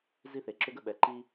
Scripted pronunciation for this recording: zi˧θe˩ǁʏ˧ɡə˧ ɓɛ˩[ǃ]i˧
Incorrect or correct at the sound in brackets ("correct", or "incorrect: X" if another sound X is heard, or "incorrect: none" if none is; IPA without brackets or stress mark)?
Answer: correct